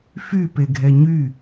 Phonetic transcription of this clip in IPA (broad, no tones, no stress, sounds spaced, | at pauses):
f y p e ɡʱ ɛ ɲ y